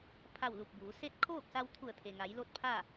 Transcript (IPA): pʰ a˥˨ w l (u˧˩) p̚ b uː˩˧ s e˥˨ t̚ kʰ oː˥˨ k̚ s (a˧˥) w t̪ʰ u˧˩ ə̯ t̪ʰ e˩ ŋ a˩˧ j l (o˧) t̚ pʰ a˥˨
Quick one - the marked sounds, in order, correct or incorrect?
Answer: correct, incorrect: a˧, incorrect: o˥˨

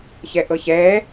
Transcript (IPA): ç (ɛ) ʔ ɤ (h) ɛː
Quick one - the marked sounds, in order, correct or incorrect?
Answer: correct, incorrect: ç

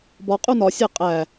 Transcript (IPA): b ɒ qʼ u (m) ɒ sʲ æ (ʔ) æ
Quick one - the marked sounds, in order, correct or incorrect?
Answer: incorrect: n, incorrect: qʼ

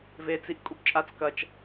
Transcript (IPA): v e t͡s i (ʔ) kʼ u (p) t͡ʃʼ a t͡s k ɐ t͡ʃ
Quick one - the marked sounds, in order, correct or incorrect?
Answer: correct, correct

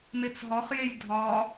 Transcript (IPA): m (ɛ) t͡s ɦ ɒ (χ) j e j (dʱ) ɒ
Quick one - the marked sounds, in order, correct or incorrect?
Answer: incorrect: e, correct, correct

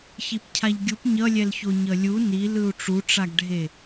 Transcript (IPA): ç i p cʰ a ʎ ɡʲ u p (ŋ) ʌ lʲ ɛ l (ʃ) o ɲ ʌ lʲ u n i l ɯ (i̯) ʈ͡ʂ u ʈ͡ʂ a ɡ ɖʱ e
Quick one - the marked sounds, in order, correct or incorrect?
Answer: incorrect: ɲ, incorrect: ç, incorrect: u̯

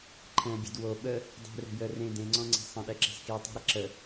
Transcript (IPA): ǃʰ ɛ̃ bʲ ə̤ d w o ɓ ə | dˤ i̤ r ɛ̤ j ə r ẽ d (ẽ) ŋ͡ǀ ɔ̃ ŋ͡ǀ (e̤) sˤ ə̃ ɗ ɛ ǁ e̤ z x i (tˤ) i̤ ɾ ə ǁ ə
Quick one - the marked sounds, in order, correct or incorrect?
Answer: correct, correct, correct

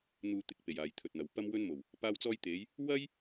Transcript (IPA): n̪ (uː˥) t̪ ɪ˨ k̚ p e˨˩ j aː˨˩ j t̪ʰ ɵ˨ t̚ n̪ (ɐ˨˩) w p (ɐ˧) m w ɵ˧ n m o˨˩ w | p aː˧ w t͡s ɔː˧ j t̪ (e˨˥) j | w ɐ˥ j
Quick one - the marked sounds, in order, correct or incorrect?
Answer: incorrect: uː˨, incorrect: ɐ˨, correct, incorrect: e˨˧

